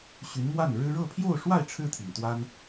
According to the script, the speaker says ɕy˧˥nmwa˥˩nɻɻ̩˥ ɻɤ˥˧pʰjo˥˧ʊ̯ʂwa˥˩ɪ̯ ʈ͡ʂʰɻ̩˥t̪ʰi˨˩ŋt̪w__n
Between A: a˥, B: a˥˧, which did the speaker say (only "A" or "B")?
A